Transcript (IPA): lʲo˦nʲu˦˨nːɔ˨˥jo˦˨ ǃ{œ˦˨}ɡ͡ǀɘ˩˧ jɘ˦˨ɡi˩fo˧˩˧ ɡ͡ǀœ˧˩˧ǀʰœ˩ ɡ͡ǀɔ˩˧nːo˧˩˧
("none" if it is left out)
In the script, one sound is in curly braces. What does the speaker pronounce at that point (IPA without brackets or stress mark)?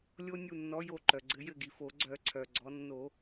œ˩